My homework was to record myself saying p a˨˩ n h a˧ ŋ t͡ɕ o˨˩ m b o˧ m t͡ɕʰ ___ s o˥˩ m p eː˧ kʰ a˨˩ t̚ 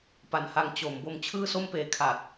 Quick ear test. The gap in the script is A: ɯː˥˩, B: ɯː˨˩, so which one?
A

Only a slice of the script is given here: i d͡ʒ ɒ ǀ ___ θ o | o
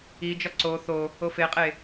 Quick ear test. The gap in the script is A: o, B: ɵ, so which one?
A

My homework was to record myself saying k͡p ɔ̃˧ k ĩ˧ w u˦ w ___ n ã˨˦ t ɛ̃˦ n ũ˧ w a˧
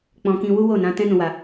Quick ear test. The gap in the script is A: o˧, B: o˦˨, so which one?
B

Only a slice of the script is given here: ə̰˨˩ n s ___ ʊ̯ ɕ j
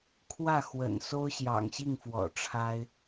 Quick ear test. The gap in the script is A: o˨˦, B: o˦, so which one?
B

